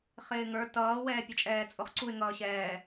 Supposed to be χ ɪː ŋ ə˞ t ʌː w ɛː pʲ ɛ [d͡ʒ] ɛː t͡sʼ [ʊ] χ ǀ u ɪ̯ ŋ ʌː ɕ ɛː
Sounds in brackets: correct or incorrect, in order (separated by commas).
incorrect, correct